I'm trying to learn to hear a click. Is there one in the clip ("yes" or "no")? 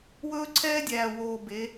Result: yes